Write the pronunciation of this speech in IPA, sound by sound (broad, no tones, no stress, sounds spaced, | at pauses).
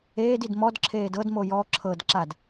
eː d i d m ɔ d ǁʰ eː d ɤ d m o j ɔ ǁʰ ɤ d ǁ a d